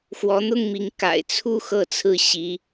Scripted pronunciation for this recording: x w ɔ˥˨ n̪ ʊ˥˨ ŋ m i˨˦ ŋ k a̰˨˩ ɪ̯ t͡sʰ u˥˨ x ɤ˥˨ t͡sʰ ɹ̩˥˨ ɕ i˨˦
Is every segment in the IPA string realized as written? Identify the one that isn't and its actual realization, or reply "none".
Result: ɔ˥˨ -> ɔ˨˦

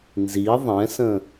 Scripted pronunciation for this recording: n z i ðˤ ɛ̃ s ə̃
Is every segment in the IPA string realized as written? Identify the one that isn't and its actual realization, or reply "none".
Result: none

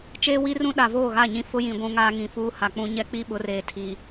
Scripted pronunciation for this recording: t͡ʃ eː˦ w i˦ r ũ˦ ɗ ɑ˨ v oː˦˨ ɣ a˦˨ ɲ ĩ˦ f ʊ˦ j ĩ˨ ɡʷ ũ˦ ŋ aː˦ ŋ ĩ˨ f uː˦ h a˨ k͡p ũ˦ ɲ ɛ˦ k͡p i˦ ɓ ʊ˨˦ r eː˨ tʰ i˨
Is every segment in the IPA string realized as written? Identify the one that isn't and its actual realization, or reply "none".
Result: ɑ˨ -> a˨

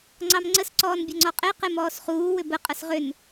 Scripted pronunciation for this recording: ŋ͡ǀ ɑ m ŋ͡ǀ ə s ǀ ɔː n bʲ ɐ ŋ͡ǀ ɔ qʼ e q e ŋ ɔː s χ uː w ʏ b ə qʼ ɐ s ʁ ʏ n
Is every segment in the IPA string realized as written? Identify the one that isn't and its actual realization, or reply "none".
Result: ŋ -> m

